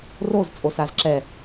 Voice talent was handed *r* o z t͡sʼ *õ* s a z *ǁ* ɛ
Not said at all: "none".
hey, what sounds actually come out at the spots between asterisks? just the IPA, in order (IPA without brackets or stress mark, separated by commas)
r, o, ǁ